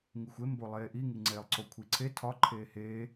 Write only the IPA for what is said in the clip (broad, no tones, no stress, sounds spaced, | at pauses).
ŋ i xʷ e m b o lˠ eː ʔ i ŋ i ŋ͡ǀ eː lˠ ǀ o kʷʰ i ǀʰ e tʰ ɒ ǃʰ eː h eː